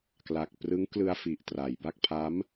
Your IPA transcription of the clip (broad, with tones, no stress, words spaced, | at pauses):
kla˨˩k̚ prɯ˦˥ŋklɯ˧a̯fi˨˩ʔ tra˩˦jba˥˩k̚ pʰa˦˥m